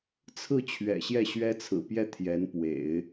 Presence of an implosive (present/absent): absent